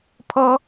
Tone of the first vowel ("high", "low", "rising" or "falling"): high